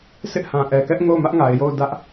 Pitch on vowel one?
high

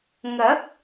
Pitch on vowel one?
rising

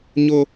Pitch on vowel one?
high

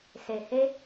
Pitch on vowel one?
low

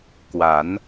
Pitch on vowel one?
rising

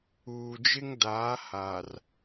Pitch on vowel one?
low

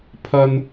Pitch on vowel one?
low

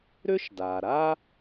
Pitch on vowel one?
high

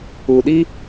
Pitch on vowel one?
low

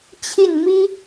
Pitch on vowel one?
falling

